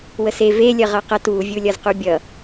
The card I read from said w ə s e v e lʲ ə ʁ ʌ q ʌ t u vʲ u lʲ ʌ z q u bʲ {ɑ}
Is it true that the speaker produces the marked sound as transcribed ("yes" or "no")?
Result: no